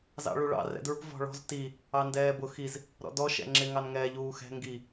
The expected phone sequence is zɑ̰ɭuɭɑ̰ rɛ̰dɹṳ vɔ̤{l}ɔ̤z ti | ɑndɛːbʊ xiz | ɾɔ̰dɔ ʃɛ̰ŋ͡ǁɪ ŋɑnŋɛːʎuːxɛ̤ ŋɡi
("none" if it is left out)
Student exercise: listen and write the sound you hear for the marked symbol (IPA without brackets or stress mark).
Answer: ɭ